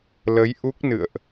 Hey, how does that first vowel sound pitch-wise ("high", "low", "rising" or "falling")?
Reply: rising